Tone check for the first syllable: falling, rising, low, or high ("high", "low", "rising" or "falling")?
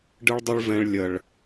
high